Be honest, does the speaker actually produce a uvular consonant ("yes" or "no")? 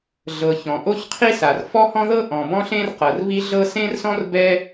yes